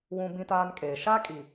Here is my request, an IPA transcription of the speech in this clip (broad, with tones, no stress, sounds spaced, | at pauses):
w ũ˦ b ĩ˦ t aː˦ n kʼ eː˨ ʃ a˦ kʼ i˨